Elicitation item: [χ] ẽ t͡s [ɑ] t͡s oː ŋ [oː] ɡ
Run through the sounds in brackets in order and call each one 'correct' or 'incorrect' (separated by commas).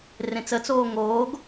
incorrect, incorrect, correct